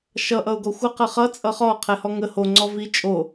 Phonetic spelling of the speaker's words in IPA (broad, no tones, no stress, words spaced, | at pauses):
ʃʌ ʔʌʊ̯ɡɔxʷə qəχʌ t͡sʼʌχɔ qʰɛhɔŋə ho ŋ͡ǀɔvi t͡ʃʼo